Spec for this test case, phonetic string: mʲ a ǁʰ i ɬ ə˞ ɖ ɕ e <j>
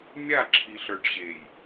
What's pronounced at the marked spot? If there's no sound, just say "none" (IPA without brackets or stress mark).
j